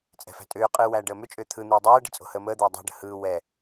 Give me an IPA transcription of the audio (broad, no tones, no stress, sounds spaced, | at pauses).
t͡sʼ ɛ̤ f æ̤ tʼ ʏː qʼ ɯː w æː ɖ əː m ʏ t͡ʃʼ ʏː t̪ʰ ɯ n̪ ɯː dˤ ɛː ɖ ə̤ t͡sʼ o̤ h əː m əː d̪ ɛː dˤ æ̤ ɖ ə̤ h ɯː w ɛ